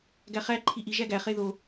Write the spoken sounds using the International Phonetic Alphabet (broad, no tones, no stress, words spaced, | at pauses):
ɡæχæ ǃʰiʔi ʒæɡæ χeðo